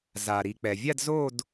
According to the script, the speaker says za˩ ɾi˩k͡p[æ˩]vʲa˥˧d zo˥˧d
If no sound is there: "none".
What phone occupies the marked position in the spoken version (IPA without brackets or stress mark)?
ɛ˩